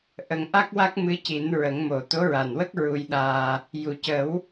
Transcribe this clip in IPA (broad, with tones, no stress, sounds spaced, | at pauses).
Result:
ʔ ə˨˩˦ ŋ ʔ a˦˥ k̚ w a˦˥ k̚ m ɨ˧˥ c i˨˩˦ n ɹ ə˨˩˦ ŋ m o˨˩ t̪ o˧˥ ɹ a˨˩ n w ə˦˥ k̚ ɹ u˧ j ɗ aː˧ | j u˨˩˨ c ə˨˩˦ w